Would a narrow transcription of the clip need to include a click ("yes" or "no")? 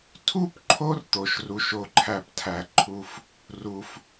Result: yes